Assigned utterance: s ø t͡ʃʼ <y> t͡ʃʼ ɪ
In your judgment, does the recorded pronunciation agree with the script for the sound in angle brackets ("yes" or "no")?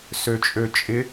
no